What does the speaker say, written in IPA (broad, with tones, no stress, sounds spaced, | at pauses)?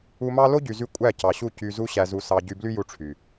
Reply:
u˧ m ɑ˦ l o˦ ɟ y˨ z y˧ kʷʼ æ˦˨ c ɑ˨ ɕ u˦˨ c y˧ z u˦ ɕ æ˧ z u˧ s ɑ˧ ɟ y˧ b l y˦ j u˧ ʈ͡ʂʰ y˨